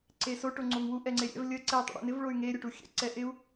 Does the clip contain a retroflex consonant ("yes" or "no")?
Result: yes